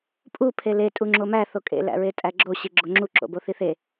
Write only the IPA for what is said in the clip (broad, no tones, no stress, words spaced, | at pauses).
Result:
pʼu pʰele tʼuŋ͡ǁomæ θokʼḛ læ̰ɹetʼæɡ͡ǁo ɕiɡ͡ǁoŋ͡ǁu ǁo̰boθiθe